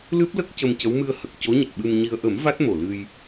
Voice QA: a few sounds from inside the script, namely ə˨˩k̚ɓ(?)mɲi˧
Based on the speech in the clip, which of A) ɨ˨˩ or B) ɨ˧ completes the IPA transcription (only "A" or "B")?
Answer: B